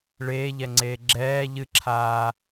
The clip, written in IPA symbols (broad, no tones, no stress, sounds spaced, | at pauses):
ɭ eː ʎ ɛ ŋ͡ǀ eː ɡ͡ǁ ɛː ʎ ɨ ǁʰ aː